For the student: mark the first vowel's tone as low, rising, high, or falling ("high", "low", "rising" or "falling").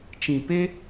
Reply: low